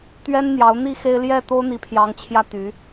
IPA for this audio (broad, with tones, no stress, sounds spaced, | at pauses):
t̪ ɥ ɛ˥ n n̪ j ɑ˧˥ ʊ̯ n̪ i˥ x e˥ ɪ̯ l j ɛ˥˩ t̪ o˥ ʊ̯ n̪ i˧˥ pʰ j ɑ˧˥ ŋ t͡ɕʰ j ä˥ t̪ y˧˥